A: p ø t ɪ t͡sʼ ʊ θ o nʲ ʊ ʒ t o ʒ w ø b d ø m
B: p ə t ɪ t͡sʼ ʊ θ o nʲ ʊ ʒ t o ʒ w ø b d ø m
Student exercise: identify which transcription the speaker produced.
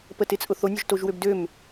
B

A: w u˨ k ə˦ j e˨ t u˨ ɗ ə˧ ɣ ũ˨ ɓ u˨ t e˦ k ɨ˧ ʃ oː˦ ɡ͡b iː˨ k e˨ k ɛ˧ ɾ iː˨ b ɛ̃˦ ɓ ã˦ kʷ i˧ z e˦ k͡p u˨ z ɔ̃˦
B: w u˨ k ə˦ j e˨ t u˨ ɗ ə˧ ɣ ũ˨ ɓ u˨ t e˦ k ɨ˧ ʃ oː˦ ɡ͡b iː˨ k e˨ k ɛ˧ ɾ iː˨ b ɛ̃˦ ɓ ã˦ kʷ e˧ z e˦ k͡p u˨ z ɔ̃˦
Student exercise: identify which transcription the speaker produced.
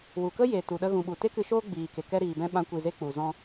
A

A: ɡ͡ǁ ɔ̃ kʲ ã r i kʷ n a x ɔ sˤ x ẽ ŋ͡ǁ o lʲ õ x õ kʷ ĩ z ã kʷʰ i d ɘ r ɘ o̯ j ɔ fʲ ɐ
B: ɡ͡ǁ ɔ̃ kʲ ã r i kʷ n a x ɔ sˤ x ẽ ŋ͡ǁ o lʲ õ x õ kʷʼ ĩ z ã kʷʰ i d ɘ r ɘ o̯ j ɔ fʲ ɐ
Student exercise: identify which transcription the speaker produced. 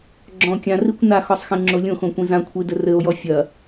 A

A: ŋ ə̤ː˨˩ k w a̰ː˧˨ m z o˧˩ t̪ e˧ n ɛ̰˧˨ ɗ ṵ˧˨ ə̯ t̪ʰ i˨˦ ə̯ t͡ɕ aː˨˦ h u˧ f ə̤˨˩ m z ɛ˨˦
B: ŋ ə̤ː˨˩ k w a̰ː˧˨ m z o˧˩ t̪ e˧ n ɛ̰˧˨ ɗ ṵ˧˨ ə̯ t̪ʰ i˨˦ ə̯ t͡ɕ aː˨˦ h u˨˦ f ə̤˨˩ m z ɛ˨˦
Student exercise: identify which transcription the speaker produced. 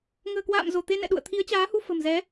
A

